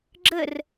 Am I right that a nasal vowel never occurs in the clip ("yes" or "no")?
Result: yes